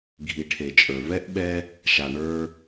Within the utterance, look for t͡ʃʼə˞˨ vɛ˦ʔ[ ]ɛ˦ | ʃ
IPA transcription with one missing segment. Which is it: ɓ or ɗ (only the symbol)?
ɓ